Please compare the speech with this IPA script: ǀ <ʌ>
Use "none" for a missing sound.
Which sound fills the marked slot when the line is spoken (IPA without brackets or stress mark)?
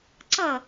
ʌ